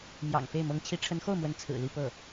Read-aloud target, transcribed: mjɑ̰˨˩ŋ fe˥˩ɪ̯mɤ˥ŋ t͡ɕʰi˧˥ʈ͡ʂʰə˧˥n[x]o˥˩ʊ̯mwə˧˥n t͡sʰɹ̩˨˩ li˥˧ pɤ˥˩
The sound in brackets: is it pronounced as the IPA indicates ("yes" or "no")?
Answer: yes